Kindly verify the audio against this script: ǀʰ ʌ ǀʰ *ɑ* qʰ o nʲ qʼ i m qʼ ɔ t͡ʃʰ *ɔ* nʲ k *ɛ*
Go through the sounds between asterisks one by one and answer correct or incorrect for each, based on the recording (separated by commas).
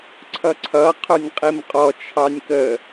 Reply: incorrect, incorrect, incorrect